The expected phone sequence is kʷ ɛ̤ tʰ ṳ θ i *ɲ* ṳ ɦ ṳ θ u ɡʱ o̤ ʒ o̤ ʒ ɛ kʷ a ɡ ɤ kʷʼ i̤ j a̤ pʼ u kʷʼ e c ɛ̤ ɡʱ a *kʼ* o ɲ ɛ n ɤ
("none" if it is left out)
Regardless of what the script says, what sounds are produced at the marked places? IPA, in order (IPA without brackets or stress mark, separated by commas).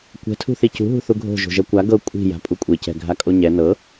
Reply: c, kʼ